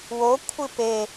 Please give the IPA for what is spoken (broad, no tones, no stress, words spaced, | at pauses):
wo kʷʰɨpe